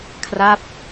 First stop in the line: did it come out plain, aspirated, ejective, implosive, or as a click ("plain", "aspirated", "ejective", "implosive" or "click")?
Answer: aspirated